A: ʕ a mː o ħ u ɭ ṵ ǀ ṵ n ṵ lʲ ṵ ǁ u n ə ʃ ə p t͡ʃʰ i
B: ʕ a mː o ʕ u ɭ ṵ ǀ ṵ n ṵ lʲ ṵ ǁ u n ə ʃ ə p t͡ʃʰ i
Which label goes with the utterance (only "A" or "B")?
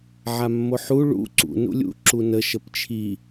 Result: A